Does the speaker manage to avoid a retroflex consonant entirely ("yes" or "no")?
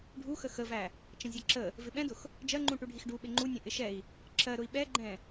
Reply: no